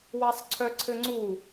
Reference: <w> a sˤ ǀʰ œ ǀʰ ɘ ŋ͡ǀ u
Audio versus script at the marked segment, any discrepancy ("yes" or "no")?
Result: no